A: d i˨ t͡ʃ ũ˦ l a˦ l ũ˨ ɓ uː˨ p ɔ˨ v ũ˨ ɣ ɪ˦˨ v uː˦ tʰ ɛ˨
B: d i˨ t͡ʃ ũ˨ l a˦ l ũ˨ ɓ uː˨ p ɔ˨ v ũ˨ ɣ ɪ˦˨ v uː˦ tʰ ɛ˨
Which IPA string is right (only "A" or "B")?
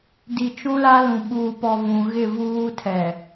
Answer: A